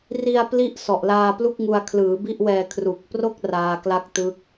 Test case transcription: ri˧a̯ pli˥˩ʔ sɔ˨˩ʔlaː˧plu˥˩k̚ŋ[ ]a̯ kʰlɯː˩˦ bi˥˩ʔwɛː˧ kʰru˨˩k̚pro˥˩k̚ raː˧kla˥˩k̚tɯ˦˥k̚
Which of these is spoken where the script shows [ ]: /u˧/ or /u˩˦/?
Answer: u˧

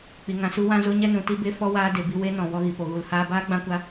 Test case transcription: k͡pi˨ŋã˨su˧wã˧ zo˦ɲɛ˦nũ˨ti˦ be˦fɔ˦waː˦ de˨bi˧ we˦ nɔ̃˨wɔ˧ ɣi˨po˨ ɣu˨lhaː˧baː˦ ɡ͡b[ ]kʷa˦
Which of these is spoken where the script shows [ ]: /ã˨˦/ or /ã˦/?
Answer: ã˦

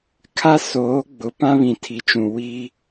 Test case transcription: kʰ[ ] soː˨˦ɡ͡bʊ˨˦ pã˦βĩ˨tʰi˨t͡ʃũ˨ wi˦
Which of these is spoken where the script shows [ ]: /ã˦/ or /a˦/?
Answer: a˦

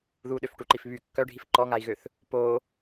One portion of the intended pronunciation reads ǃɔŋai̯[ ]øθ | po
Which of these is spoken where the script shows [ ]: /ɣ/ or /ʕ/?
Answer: ɣ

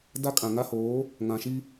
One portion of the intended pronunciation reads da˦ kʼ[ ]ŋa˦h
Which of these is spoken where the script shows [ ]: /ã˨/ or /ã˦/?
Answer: ã˨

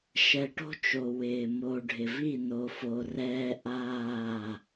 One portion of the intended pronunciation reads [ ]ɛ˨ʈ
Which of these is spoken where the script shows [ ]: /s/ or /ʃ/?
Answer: ʃ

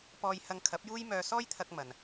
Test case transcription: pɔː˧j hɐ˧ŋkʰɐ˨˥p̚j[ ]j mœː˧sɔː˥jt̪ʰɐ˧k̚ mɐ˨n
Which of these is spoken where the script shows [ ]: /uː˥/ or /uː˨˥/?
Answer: uː˥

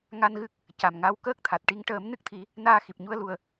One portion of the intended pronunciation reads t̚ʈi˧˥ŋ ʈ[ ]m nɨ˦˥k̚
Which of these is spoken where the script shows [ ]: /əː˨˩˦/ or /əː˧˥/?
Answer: əː˨˩˦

